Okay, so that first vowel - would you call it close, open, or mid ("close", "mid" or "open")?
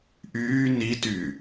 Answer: close